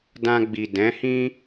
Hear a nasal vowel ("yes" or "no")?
yes